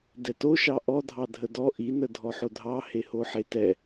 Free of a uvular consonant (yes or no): yes